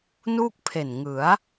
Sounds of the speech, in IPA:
nuː˥˩k̚pʰe˨˩nŋɯ˩˦a̯

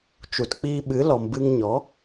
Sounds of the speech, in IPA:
t͡ʃu˨tk͡piː˧ɓɨ˨˦lɔ˨m bɨ˧ŋɲɔ˨˦

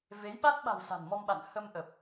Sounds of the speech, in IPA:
ve˨˦jɓa˦˥t̚ɓa̤˨˩w sa̤˨˩nmɔ˧mɓa̰˧˨n hə˧mʔə˨˩p̚

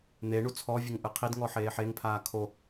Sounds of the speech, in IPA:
n̪eɳu t͡sʰɔvʲɘŋ ʔɨqʰidŋɔ ħeːħeŋpʰaː kʰo

